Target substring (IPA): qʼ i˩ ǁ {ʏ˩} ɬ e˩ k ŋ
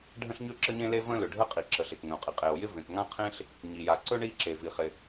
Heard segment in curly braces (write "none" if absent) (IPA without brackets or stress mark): ə˩